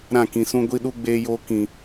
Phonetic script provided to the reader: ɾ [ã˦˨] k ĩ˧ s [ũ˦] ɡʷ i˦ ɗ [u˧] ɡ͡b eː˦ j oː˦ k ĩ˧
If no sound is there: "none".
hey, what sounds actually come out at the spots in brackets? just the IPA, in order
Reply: ã˦˨, ũ˦, u˦

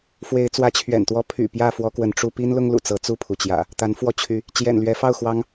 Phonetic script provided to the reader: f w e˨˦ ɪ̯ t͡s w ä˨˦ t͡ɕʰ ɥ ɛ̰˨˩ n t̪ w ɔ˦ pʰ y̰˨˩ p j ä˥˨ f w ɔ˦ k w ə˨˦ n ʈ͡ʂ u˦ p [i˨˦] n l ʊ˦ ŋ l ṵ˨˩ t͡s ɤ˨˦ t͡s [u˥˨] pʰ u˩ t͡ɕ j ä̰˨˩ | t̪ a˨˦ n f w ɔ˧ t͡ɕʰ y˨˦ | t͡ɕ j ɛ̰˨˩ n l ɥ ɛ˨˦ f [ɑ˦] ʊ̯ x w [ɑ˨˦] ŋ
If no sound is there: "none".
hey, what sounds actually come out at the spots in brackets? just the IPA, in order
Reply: i˦, u˥˨, ɑ˥˨, ɑ˦

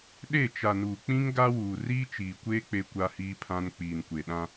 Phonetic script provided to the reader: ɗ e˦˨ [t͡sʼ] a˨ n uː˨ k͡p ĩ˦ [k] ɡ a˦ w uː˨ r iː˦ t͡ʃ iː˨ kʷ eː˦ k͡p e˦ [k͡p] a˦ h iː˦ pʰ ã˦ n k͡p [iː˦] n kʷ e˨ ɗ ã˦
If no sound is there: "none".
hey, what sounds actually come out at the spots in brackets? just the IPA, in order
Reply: t͡ʃ, ŋ, kʷ, iː˨

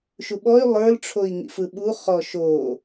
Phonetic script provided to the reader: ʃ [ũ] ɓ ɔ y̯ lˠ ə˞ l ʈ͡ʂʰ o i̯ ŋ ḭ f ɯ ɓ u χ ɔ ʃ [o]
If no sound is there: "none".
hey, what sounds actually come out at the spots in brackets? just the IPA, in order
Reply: u, o

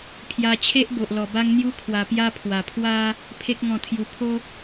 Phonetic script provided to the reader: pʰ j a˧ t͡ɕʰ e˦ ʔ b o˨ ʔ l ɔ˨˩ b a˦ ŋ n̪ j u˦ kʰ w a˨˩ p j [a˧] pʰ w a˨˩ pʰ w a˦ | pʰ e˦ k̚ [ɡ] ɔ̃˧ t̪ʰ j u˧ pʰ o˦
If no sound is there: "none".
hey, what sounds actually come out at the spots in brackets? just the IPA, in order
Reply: a˦, ŋ

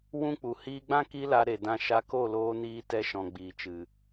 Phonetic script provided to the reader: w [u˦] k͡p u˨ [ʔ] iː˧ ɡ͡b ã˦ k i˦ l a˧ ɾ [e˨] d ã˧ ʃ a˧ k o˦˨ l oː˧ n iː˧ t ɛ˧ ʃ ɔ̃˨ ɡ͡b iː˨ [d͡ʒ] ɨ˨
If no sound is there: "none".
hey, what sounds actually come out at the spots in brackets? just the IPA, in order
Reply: ũ˦, h, e˨, t͡ʃ

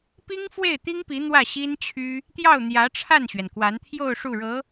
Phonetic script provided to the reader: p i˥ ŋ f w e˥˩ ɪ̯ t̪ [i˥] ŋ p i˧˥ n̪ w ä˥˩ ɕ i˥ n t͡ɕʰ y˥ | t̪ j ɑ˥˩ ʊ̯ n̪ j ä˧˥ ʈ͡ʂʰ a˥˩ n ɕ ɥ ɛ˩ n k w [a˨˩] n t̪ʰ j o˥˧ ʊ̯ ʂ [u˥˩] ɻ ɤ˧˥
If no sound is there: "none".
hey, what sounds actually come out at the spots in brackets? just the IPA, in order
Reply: i˥, a˧˥, u˥˩

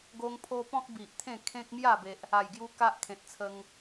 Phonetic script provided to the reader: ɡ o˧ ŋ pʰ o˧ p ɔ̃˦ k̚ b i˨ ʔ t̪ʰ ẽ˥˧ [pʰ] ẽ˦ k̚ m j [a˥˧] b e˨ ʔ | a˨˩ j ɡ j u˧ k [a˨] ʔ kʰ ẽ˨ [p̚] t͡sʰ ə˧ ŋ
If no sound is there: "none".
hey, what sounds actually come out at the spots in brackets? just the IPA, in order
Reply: kʰ, a˥˧, a˦, t̚

